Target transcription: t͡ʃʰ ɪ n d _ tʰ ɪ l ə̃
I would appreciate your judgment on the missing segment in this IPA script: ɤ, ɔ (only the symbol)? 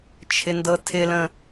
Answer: ɤ